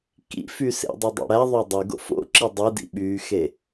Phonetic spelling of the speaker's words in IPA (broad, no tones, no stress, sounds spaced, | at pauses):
k ḭ f y s ḛ dˤ i dˤ ḛ ɽ æ ðˤ ø dˤ y ɡ o̰ f o̰ ǁ i dˤ i d ḭ ɓ yː x e